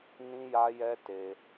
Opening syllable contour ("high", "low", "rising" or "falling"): high